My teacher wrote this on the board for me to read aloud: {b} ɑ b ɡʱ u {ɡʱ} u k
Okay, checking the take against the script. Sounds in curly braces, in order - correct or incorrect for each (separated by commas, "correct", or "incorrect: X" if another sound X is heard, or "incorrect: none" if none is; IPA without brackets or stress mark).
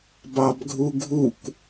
correct, correct